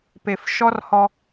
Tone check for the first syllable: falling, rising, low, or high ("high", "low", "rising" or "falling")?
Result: low